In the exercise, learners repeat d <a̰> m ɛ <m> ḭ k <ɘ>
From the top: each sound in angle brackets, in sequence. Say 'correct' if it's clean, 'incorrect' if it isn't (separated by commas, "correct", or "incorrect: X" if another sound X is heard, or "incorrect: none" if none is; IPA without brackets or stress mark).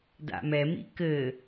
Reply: correct, correct, correct